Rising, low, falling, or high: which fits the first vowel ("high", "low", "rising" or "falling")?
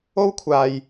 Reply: high